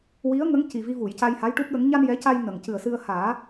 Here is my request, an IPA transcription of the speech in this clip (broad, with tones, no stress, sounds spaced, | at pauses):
w i˧˥ ə̯ ŋ ə˧˥ ŋ c i˨˩ v i˧ v u˨˩˨ j c a˧ j h a˧˥ j ʈ u˦˥ p̚ ɗ ə˧˥ ŋ ɲ a˧ n j ɛ˧˥ c a˧ j n ə˨˩˨ ŋ c ɨ˨˩ ə̯ s ɨ˧ ə̯ h aː˨˩˦